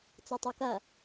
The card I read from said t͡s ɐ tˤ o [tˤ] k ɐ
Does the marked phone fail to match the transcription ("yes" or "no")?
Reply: yes